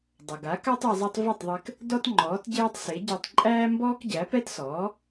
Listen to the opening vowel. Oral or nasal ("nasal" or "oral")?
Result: oral